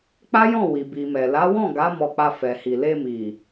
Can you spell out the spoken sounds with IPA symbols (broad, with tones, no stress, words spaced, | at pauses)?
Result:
k͡pa˦jɔ̃˦˨wi˨ bi˨mɛ˨ la˨˦wɔ̃˦˨ ɡa˨˦ mɔ˧k͡pa˧ fɛ˨hi˨ le˧mi˨